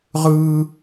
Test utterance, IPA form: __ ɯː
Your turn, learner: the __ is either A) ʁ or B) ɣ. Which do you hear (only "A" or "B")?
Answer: A